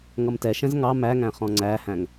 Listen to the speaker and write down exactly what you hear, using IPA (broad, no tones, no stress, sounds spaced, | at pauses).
ŋ ʌ m t ɛ ʃ ɛ̃ z ŋ ɑ m æ ŋ æ̃ χ ɔ̃ ŋ͡ǀ æ h æ̃ ŋ